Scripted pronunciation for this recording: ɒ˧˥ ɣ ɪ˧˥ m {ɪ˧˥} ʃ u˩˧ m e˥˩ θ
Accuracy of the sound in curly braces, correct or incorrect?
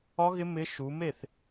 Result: correct